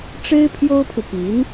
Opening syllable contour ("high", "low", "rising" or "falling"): high